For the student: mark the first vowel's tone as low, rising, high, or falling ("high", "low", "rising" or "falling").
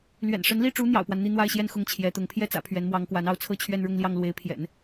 low